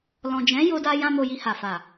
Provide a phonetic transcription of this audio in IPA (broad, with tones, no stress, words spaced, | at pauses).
lɔ̃˨d͡ʒɛ̃˨˦ jo˧da˧jã˧ mo˧ji˧ha˨fa˨